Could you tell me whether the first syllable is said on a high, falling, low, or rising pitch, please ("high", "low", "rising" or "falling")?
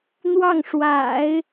falling